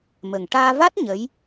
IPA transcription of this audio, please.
mə˨˩ŋ ʈaː˧va˦˥t̚ ɲə˧˥j

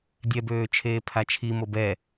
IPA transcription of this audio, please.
dʲɛbøːt͡ʃʰeːpʰa t͡ʃʰimob ɛ

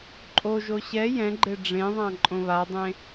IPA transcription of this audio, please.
ǃʼoʒo ɕɛ jɛ̃ɡ͡ǃe ɖ͡ʐẽðˤã ǃʼõβadˤẽ

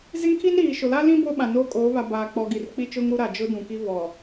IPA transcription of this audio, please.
ze˦ŋkʰi˦n ɾiː˨ ʃʊ˨la˦lĩ˦ bo˦ɓã˨noː˦ kʼoː˨˦βa˨baː˨ k͡pɔ˨ɡi˨rk͡pi˦t͡ʃʊ˦ŋ ɾu˦ɾa˨ d͡ʒʊ˦dũ˨ki˦ βɔ˨

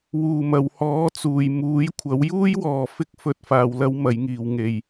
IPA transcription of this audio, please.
wuː˨˩mɐ˨˩whɔː˨˥t͡suː˨˩j muː˨˥jkʷʰɐ˨˥w juː˥jwɔː˨ fɪ˥k̚fɵ˧t̚ faː˧wlɐ˥wmɐ˨˥jŋiː˨w ŋe˨j

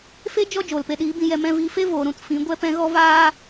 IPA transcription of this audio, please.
fe˦ d͡ʒɔ˦ d͡ʒoː˨lpe˧ɗiː˨˦ bĩ˧jɛ˧mɛ̃˧viː˧ fe˦ voː˨ɾũ˧t fĩ˨˦ɡʷɛ˦pɛ̃˦ ɣɔ˦ vaː˦

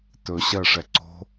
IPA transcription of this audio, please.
tɵ ɕɜʂɛ ǀo̤

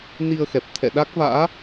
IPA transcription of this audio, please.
ni˧ə̯xɛ˨˩p̚ t̪ʰɛ̰˧˨ ɗa˦˥k̚va̰ː˧˥

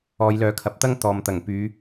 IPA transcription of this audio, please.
ɔː˨˧jlœː˨˧kʰɐ˨˥p̚t̪ɐ˥ŋ t̪ɔː˨mt̪ɐ˨˩ŋ pyː˨˧

